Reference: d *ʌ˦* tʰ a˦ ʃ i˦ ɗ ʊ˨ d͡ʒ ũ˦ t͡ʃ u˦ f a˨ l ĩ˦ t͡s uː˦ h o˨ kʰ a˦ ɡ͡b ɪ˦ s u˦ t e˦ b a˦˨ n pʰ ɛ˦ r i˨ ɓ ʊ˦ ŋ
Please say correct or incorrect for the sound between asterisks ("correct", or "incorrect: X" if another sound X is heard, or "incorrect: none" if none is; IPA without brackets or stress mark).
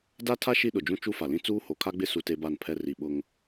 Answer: incorrect: a˦